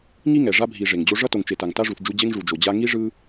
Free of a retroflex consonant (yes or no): no